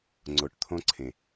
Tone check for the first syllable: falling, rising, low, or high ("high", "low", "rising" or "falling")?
low